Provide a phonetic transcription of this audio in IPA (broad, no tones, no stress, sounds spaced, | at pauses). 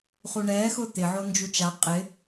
χ u ɳ ɛː x ʊ t̪ ɪ ʕ o n d͡ʒ u t͡ʃ a qʼ ɪ